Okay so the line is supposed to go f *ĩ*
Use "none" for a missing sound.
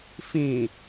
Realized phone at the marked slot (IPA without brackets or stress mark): ĩ